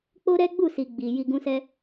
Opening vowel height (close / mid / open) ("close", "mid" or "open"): mid